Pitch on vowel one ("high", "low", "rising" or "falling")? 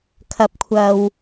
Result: rising